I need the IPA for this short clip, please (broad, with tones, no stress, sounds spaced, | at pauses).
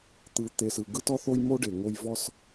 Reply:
t̪ ɯ˨ t̪ e˨ s ɯ˨ ɡ ɯ˦ t ɔ˦ θ o˦ j m o˦ ɖ e˨ ŋ o˦ j v ɔ˦ s